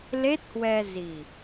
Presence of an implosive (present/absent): absent